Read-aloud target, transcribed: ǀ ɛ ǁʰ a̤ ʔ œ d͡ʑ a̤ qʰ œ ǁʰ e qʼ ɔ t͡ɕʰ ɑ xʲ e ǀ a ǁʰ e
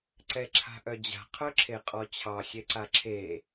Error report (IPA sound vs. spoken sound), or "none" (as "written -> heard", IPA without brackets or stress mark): none